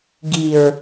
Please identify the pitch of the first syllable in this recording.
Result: low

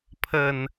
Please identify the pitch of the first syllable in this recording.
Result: low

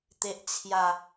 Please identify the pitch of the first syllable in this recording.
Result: low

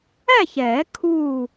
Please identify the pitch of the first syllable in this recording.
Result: falling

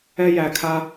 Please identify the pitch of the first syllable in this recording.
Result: high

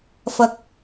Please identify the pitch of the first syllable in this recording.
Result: high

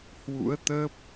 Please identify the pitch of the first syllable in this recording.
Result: rising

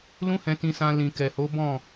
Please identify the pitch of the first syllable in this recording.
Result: high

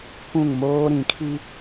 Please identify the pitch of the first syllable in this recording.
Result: falling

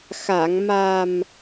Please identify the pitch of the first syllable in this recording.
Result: low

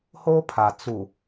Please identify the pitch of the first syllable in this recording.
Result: high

